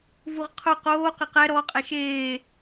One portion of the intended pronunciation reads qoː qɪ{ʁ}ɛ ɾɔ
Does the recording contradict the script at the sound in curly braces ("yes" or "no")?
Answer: yes